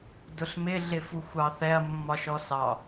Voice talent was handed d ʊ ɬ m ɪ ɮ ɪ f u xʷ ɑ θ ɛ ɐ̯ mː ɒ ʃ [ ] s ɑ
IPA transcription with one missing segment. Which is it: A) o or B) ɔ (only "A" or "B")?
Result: B